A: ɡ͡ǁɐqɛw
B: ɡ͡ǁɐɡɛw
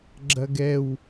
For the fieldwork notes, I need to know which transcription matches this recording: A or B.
B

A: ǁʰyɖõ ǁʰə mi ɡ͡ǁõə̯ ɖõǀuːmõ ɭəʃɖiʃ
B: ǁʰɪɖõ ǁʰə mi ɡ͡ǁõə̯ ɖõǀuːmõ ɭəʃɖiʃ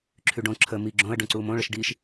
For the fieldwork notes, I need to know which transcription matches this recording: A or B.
A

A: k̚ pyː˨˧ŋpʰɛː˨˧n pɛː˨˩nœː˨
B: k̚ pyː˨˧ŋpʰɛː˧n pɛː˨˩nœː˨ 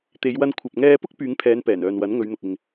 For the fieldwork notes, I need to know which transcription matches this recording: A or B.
A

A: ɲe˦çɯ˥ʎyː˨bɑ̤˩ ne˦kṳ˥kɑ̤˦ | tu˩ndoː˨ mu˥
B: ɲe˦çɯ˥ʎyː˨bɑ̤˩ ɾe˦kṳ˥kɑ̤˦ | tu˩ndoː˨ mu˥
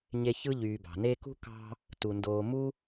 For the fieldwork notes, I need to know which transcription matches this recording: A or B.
A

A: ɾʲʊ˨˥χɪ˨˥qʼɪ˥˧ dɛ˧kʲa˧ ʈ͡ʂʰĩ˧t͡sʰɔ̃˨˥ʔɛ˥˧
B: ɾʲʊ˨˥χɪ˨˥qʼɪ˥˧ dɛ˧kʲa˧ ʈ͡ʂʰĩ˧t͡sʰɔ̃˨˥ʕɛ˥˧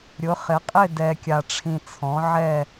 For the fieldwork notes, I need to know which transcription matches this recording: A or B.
B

